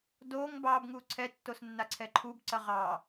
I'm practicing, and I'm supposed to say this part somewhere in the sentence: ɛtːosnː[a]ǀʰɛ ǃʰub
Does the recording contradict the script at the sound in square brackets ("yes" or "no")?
no